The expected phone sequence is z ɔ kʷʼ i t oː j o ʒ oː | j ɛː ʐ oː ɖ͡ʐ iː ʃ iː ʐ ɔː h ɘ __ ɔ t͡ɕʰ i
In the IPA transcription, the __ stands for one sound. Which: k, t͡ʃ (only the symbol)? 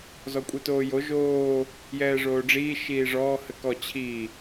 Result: k